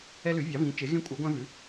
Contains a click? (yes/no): no